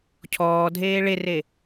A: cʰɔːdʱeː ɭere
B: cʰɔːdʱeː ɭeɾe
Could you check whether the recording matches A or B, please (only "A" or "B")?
A